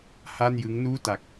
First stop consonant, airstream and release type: plain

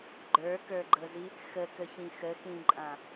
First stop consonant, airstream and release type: click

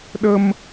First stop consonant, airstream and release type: implosive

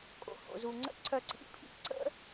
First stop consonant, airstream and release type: ejective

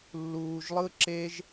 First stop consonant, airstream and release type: click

